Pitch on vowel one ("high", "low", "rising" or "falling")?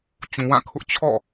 low